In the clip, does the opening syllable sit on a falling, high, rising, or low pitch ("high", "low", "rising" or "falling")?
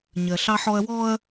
low